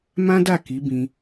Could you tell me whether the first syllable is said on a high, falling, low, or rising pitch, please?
high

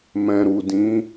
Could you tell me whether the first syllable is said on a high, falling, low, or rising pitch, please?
low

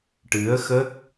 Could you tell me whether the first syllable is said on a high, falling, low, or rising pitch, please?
rising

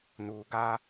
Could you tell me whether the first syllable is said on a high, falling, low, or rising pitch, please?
low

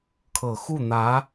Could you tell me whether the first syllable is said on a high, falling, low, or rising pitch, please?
low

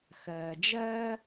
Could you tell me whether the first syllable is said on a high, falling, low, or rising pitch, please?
low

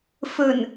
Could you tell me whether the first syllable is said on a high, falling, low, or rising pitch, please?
low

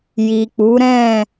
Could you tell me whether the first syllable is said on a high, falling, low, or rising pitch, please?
low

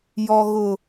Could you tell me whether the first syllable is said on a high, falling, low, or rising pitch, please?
high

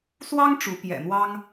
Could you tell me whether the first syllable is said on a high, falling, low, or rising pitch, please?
high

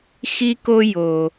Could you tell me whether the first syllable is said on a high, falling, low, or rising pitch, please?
high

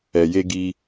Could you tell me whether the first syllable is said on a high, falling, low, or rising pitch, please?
low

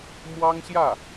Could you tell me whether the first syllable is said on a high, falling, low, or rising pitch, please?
high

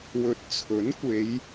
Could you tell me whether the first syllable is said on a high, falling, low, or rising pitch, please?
rising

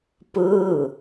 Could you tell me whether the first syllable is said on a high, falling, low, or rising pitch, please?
falling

